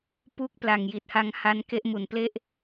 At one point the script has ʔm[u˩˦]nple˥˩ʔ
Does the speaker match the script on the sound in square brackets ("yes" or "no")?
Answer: no